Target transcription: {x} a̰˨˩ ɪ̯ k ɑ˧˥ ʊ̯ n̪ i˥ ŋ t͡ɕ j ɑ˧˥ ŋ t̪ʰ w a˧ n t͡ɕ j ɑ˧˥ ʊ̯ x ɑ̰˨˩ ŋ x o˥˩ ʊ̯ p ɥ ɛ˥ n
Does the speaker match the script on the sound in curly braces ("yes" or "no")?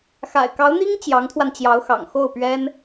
yes